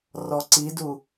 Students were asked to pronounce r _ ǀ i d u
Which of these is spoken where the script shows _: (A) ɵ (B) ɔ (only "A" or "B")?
B